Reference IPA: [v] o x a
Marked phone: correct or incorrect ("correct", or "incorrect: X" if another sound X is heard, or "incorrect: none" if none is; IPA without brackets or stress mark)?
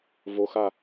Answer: correct